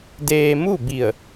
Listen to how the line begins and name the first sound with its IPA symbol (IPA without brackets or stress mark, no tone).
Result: d